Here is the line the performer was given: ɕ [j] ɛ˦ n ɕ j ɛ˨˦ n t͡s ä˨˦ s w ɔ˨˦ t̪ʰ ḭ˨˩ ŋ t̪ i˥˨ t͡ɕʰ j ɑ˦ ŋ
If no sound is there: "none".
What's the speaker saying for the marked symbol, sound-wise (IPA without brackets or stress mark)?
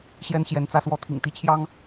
j